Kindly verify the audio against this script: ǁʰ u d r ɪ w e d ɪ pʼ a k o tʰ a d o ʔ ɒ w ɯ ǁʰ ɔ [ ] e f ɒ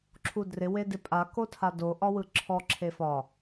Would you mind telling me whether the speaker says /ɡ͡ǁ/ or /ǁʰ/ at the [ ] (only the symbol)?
ǁʰ